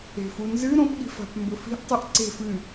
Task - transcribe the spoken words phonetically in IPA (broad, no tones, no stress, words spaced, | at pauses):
e̤funzɨ ɾõpɠi̤fa̤p mbɵfi̤ʔ tˤɨʔǀe̤f ɨ